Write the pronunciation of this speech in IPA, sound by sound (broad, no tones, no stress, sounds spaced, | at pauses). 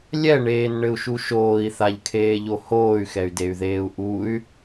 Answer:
lʲ ɛ ɳ eː n ɳ ɘ u̯ ʃ u ʃ oː i̯ θ a ʎ kʰ eː ʎ o h oː y̯ x ɛ y̯ d e y̯ ð eː u̯ ʔ u y̯